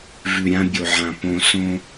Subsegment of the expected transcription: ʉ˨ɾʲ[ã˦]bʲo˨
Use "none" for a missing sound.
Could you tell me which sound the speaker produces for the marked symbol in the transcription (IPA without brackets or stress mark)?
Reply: ã˦